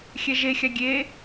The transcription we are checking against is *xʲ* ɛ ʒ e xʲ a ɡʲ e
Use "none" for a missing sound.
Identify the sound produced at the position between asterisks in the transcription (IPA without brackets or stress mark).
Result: xʲ